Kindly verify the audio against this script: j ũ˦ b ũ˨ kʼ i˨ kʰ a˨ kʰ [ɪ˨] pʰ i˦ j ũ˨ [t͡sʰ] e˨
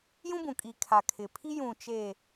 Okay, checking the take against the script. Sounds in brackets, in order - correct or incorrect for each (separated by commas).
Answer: correct, incorrect